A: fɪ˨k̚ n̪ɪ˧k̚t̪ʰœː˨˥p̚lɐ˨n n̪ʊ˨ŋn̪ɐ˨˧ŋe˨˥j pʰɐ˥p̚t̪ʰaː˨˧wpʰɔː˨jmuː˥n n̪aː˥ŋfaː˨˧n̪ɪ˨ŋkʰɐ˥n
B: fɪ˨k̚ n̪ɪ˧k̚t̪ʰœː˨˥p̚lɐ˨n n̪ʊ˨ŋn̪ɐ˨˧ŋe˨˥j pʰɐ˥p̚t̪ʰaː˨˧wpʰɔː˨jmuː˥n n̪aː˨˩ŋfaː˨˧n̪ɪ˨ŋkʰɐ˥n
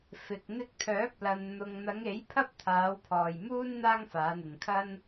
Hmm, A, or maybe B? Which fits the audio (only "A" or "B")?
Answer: A